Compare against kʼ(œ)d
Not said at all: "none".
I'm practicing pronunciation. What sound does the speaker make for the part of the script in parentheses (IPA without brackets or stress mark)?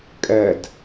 ɛ